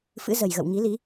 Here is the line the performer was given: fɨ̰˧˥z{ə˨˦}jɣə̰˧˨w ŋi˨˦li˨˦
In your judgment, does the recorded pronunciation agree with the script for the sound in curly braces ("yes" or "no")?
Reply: no